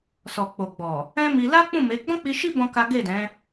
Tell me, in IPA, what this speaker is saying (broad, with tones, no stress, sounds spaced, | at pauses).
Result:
s ɔ˨ k͡p o˨ ɡ͡b ɔ˨ | ɛ̃˦ m i˧ l a˦ k͡p ũ˦˨ m e˨˦ ɡ͡b ɔ̃˦ k͡p i˧ ʃ i˦ b ɔ̃˦ k a˦ ɡ e˦˨ d ɛ̃˨˦